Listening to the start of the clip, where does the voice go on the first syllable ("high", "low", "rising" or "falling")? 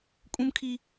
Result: high